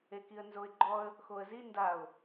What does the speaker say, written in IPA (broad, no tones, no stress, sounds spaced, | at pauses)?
e k i ə̯ n z o ɪ̯ ɡ͡ǃ ɔ ə̯ | x o ə̯ z i n d a ʊ̯